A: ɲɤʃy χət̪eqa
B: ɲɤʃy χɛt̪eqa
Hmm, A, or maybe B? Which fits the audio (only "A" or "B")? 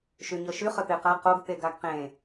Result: A